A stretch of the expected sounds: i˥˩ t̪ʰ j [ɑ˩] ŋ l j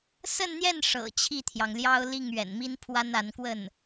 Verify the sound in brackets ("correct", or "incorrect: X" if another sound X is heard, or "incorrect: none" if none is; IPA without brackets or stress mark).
correct